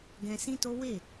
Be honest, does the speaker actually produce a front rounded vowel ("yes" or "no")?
no